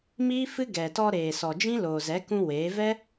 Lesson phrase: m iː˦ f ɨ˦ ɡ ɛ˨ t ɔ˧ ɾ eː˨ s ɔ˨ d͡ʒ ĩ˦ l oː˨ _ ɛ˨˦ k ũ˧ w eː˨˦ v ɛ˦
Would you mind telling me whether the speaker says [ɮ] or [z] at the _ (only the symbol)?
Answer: z